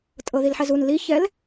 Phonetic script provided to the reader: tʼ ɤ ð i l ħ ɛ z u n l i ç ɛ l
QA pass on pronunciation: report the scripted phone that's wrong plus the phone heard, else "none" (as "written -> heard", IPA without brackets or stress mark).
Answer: none